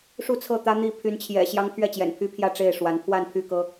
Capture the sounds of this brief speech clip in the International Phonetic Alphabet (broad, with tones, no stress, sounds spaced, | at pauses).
ʂ u˥˨ t͡sʰ ɤ˥˨ t̪ ä˦ n̪ i˥˨ pʰ y˨˦ n t͡ɕʰ j ɛ̰˨˩ ɕ j ɑ˦ ŋ pʰ ɥ ɛ˥˨ t͡ɕ j ɛ̰˨˩ n pʰ y˦ pʰ j ä˥˨ ʈ͡ʂ e˥˨ ɪ̯ ʂ w a˨˦ n pʰ w a˥˨ n pʰ y˥˨ k ɤ˦